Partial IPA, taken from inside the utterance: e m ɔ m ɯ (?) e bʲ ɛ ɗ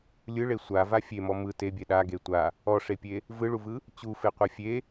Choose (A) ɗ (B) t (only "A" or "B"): B